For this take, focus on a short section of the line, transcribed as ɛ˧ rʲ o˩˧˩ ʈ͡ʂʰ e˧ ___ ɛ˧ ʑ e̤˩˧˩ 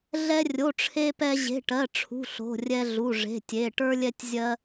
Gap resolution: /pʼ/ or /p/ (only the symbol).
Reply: p